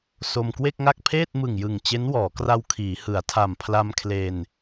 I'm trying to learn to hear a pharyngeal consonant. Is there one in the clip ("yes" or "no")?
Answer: no